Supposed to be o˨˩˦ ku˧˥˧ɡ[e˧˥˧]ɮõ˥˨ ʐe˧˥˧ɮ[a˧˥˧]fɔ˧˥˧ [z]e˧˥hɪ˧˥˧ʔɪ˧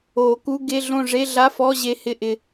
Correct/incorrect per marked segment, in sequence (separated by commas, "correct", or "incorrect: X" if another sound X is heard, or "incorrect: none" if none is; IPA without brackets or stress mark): correct, correct, incorrect: ʑ